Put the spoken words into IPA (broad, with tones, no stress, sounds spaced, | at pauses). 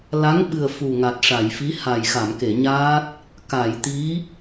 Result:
l a˧˥ ŋ ɓ ɨ˨˩ ə̯ f u˨˩ ŋ a˨˩ t̚ ʂ a˨˩˨ j f i˧˥ h a˨˩ j x a˨˩˨ m k e˨˩˨ ɲ aː˦˥ t̚ | k a˨˩˨ j t̪ i˧˥